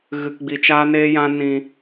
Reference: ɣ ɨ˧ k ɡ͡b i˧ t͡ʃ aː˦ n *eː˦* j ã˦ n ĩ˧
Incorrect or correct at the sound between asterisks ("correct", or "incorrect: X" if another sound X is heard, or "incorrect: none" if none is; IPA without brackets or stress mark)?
correct